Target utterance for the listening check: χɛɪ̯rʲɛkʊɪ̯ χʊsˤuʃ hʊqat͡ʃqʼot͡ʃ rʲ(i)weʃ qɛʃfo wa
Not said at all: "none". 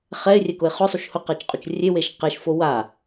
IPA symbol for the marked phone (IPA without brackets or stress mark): e